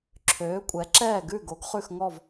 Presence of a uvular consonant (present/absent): present